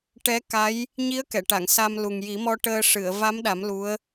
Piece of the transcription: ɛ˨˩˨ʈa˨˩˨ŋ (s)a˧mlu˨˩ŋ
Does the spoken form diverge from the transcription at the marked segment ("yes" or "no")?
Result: no